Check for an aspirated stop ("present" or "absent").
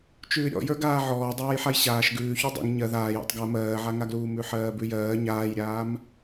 absent